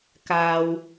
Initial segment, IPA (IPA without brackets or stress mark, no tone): k